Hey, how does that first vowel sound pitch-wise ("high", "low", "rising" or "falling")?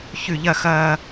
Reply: falling